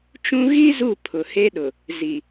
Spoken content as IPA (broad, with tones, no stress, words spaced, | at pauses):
t͡ʃũ˦ ɣi˦ zu˦˨ pʰʊ˨he˦ɗʊ˨ | zi˨